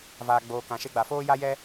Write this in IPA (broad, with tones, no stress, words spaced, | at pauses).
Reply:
vaː˨ɡ͡boː˨ kã˨ʃe˧ɡ͡ba˨foː˦ ja˦jɛ˦